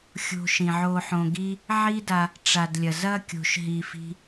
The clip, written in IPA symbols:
xʲ o̤˧ ʃ ĩ˨ ʕ o˧ ħ õ˧ ɡ i˦ | ʕ i˦ d a˧ | ʈ͡ʂ a˨ d lʲ ɐ˨ z ɐ˦ kʲ o̤˧ ʃ ɦ i˧ f i̤˦

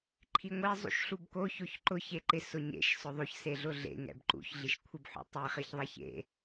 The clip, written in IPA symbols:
ǃʰ i ŋʷ e zˤ ṵ ʃ ɬ u b k o ç o ç ǃ ʊ ç e ǃ ɪ s ʊ ɲ ḛ ʃ s ʊ ðˤ o ç s e ɮ ʊ ɮ ḛ ŋ ɛ̰ b ǃ ṵ ç ɮ i ʃ kʷʰ ɪ b ħ ṵ tˤ e χ i ç ðˤ ɛ ç ḛ

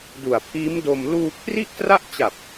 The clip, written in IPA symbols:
d u˨˩ a̯ pʰ iː˦˥ m d o˧ m l uː˧ kʰ r i˥˩ ʔ t r a˥˩ ʔ t͡ɕ a˨˩ p̚

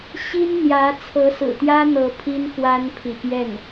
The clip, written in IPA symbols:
ɕ i˥ n n̪ j ä˧˥ t͡sʰ ɤ˧˥ s ɹ̩˨˩ t̪ j ä˥ n̪ ɤ˧˥ pʰ i˥ n x w a˥ n pʰ i˨ p j ɛ˥˩ n

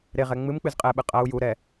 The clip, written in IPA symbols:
ɾ e ʁ ɛ ŋ͡m ɨ m k͡p ɨ z qʼ ɛ ɓ ɨ qʼ ɐ u̯ j u ɾ ɛ

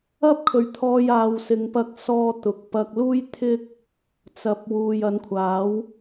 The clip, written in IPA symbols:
ɐ˥ p̚ kʰ ɵ˨˧ ɥ t̪ʰ ɔː˧ j aː˧ w s ɪ˨˧ ŋ p ɐ˧ k̚ s ɔː˧ t̪ ʊ˨ k̚ p ɐ˧ k̚ l uː˥ j t̪ʰ ɪ˥ k̚ | t͡s ɐ˨ p̚ w uː˨ j ɐ˨˧ n kʷʰ aː˨˥ w

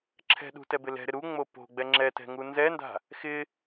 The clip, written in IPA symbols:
ǁʰ ɛ̤ ɗ ṳ t ɛ b ɪ l ɛ̤ ɾ ɪ ɾ u ŋ͡m o p o̤ ɡ͡b ɛ ŋ͡ǁ ɛ t ɛ̤ ŋ u n z ɛ n d a̤ | x ɪ

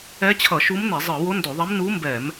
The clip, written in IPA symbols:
ɛ˧˥ t͡ɕʰ ʌ˧˩˧ ʃ u˧˥ m n e˧˩˧ zˤ ɯ˧˩˧ w o˧˥ n d o˧˩˧ ðˤ e˧˥ m n u˧˥ m b ɛ˧˩˧ m

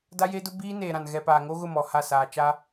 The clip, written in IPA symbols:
d a˦ j e˦ d ʊ˦ b iː˦ n eː˨ ɾ ã˨ n ɣ ɛ˨ p aː˨ ŋ o˦ ɣ ʊ˦˨ m ɔ˨ h a˦˨ s aː˨ t͡ʃ a˦

